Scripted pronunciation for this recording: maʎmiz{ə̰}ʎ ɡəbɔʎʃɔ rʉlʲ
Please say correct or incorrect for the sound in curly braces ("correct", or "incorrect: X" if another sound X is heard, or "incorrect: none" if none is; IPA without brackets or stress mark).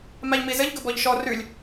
incorrect: ə